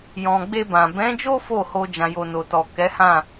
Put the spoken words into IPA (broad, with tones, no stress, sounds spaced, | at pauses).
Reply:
j ɔ̃˨ ɡ͡b e˧ b ã˨ b ɛ̃˨˦ d͡ʒ o˦ f o˦˨ h o˧ d͡ʒ ã˨ j o˨ n o˨ t ɔ˨ k ɛ˨˦ h ã˦˨